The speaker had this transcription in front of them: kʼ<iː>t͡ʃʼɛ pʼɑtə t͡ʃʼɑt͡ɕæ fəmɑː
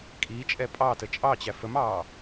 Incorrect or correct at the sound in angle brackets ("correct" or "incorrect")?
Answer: correct